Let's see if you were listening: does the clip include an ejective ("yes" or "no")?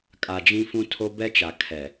yes